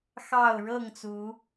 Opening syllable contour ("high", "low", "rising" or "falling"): falling